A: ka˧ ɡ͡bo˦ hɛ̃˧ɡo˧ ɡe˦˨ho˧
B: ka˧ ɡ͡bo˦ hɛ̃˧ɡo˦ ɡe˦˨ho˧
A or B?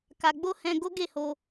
B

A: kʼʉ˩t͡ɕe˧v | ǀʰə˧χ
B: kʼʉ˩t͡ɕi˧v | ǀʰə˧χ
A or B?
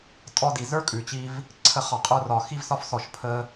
B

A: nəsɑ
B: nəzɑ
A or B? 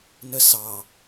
A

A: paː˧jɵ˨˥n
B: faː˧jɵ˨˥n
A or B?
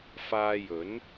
B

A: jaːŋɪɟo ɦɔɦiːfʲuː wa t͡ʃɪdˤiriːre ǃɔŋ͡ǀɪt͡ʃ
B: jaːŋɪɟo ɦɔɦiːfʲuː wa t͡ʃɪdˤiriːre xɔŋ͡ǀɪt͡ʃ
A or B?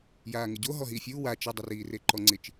A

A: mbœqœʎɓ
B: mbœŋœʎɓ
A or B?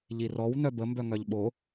B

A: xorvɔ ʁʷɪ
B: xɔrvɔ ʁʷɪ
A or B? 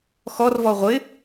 B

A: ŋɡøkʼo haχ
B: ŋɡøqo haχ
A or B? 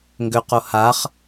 B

